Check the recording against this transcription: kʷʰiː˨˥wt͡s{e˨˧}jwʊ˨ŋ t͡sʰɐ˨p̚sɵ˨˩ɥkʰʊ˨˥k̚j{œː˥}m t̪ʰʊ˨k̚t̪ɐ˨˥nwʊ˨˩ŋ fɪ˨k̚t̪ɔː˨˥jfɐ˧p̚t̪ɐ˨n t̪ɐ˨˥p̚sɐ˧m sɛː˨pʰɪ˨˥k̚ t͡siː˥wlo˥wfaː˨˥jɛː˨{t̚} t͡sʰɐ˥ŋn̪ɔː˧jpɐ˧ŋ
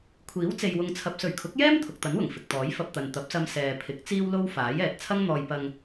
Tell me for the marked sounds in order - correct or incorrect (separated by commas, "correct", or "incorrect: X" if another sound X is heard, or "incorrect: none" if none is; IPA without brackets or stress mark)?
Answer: incorrect: e˨, incorrect: ɛː˥, correct